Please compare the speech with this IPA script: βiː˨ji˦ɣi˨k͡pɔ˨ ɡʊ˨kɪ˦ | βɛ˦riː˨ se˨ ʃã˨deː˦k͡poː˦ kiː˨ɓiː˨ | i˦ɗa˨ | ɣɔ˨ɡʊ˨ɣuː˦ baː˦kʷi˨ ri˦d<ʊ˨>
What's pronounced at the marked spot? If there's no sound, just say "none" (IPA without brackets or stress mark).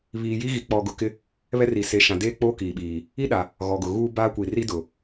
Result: ʊ˨